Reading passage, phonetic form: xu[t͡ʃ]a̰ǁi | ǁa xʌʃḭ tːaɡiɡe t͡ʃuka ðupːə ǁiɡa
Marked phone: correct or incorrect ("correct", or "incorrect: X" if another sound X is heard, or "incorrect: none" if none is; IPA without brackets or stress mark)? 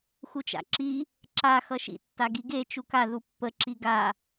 correct